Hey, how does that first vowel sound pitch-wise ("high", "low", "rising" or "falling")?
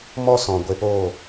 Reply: high